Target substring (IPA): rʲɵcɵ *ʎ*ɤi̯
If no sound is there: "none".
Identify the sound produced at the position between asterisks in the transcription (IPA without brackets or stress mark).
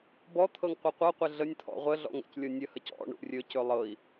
lˠ